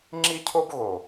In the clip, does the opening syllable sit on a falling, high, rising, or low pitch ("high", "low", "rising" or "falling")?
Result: high